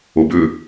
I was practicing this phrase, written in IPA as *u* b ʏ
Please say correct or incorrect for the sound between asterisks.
incorrect